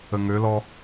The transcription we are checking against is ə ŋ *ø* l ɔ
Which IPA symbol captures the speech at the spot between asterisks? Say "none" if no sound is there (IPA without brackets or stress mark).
ø